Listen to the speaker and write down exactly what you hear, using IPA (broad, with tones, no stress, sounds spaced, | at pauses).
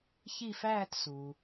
ç i˥˧ f æː˥˧ t s u˩